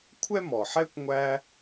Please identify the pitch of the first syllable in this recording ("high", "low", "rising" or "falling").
high